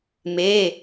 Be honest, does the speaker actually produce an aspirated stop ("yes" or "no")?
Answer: no